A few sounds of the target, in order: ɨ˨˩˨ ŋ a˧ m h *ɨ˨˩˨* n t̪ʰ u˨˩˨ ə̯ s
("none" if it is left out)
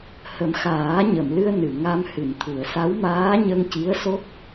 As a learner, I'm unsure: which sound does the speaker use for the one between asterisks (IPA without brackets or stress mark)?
ɨ˨˩˨